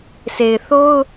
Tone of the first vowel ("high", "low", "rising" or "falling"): low